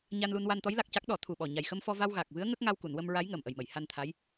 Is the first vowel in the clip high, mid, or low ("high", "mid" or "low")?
low